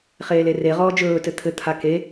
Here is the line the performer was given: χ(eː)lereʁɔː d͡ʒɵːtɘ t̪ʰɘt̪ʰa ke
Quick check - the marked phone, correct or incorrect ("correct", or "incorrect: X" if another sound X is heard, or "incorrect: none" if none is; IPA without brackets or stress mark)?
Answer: correct